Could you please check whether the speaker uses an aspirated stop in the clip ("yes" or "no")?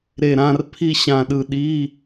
yes